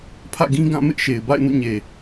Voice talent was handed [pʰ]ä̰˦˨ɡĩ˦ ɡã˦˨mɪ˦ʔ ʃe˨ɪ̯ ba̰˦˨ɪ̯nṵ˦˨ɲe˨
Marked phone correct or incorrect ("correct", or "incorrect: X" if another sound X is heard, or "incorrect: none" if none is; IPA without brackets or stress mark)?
correct